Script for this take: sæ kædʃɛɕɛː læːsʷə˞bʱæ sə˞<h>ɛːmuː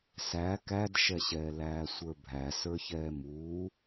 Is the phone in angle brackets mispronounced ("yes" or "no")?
yes